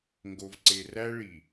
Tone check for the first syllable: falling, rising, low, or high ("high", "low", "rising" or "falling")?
low